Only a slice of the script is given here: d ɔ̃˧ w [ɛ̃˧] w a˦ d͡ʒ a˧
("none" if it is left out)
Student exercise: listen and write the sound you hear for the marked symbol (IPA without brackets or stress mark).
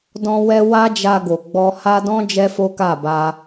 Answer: ɛ˧